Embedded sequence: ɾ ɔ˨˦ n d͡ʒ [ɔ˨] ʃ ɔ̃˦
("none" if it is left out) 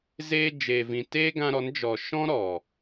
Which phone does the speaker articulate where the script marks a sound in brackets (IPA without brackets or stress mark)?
ɔ˨